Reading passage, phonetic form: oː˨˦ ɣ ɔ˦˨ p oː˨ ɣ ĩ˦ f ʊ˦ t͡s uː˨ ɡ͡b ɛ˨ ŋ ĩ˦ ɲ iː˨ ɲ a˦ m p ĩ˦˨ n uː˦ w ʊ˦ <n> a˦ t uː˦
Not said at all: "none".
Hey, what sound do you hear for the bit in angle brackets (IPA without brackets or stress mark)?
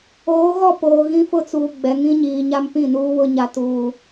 ɲ